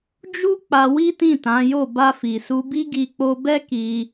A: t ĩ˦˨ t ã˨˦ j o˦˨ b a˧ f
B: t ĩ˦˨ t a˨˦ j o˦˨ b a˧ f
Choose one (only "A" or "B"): A